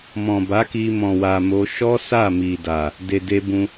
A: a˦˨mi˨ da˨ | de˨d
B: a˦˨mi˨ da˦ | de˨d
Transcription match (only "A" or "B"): A